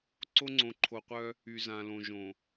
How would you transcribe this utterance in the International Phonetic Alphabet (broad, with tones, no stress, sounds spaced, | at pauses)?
ǀ o˦ ŋ͡ǀ õ˨ ǃʰ o˨ qʷ œ˦ | y˨ z ã˨ l õ˨ ʒ õ˨